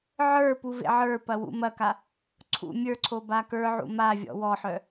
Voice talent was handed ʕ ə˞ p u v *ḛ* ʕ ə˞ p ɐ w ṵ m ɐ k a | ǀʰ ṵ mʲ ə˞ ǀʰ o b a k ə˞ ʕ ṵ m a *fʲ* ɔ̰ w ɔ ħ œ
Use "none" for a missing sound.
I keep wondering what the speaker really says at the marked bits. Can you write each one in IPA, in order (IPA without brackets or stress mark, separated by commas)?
ḛ, vʲ